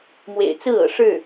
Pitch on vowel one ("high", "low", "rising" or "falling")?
low